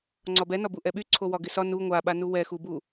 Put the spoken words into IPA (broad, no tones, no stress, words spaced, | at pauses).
ŋ͡ǀɒbɛnɒbu ʔɛɓyǀʰo wɒɡɪsɒ nu ŋʷaɓanu wɛxubu